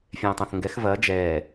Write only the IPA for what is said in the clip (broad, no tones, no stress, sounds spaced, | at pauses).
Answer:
fʲ ɛ̃ː tˤ õ θ ŋ ɡ ɛ x v ɐː d͡ʒ ɛː